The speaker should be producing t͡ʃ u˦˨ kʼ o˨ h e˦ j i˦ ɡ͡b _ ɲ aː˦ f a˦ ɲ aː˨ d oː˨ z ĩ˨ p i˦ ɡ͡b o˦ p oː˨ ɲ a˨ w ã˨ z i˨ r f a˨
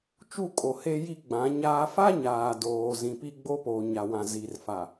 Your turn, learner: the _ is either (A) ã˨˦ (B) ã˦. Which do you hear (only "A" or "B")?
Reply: A